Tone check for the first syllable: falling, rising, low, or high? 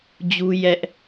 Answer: high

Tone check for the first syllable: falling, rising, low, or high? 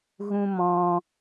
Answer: high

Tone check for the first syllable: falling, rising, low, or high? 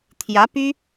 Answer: rising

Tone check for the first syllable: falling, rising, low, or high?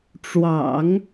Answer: low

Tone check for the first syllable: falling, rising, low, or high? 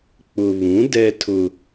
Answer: low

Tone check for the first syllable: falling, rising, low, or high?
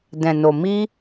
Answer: low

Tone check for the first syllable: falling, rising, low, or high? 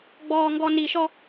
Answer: low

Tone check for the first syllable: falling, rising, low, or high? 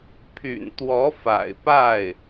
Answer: low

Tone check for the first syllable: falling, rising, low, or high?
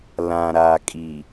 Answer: low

